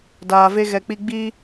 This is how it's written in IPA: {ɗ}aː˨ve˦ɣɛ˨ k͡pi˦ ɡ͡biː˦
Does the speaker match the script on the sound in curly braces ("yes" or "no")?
no